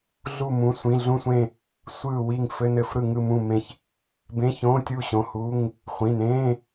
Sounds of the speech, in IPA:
ɮ u˦˨ m ũ˩˧˩ sʷ ĩ˩˧˩ ɮ ũ˦˨ sʷ ẽ˦˨ | sʷ ɯː˦˨ w i˦˨ ŋ f ɘ˧˥˧ n ɘ˦˨ f ɾ ɯ˦˨ ŋ ɯ˦˨ m ũ˦˨ m ẽ˦˨ ç | b ẽ˧˥˧ ç õː˧˥˧ tʲ uː˦˨ ɕ õ˩˧˩ h uː˧˥˧ ŋ | χʷ ĩ˩˧˩ n ẽː˧˥˧

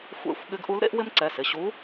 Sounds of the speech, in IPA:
xʷ ḛ˧˥ xʷ ɠ ɪ˧˥ ɡ ʔ u˧˥ l ɾ ḛ˥ ʔ w ɪ˥ m ǀ ɛ˩˧˩ s ɪ˩˧˩ ɕ u˧˥

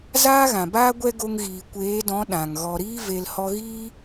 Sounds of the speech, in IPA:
z aː˦ ɣ ã˨ b aː˦ ɡʷ ɛ˦ ɡ o˧ ŋ ɣ iː˨ kʷ eː˨˦ d ɔ̃˨˦ ɗ ã˨ ŋ ɣ ɔ˨ ɾ iː˧ v e˨ l h ɔ˧ ɣ iː˦

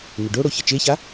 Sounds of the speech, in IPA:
n ɪ ɖ o ɽ o ç ɘ t͡ʃ e ç a

